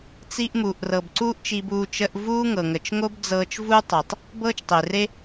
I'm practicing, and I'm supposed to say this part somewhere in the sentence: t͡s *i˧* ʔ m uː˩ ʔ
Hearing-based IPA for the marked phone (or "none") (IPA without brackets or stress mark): i˧